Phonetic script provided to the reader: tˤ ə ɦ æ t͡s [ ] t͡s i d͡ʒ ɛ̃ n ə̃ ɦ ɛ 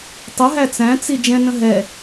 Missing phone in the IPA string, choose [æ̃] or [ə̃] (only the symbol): æ̃